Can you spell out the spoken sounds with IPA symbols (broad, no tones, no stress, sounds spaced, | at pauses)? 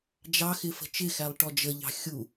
d͡ʒ ɑ x ɪ f ə̤ t͡ʃ ɪ x æ lˠ ʈ ɔ d͡ʒ ə ʎ ɑ̤ xʲ u